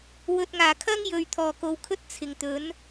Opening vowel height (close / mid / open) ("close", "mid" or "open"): mid